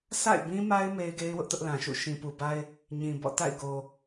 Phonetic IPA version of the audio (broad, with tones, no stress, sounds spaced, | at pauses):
s a̰˦˨ ɪ̯ b ĩ˦ m a˦ ɪ̯ m e˦ ɪ̯ ɡ e˦ ɪ̯ w ʊ˦ ʔ t ʊ˦ ʔ l ã˨ ʃ ṵ˦˨ ʃ ĩ˨ p u˨ b a˦ ɪ̯ | ɲ ĩ˨ b ɔ̰˦˨ t a̰˦˨ ɪ̯ ɡ o˨